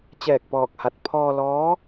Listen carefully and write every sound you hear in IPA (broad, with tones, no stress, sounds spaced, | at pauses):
t͡ɕ ɛː˧˩ k̚ p ɔː˧˩ k̚ h a˧˩ t̚ pʰ ɔː˧ l ɔː˧˥